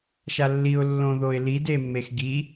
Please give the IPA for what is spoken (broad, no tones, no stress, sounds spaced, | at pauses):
ʃ a lː i ʊ̯ lː õ ð o ɪ̯ l i d e mː e x ɡ i